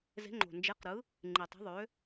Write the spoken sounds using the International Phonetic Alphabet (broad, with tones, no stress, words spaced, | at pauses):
ze̤˨˥ŋ͡ǃo̤˨˩nd͡ʒe˨˥qɾɯ˨˥ | ŋ͡ǃi˨˩tˤi̤˨˥ ðˤø˨˥